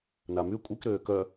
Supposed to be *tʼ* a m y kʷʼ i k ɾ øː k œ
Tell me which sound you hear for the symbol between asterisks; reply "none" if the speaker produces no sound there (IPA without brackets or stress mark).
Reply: n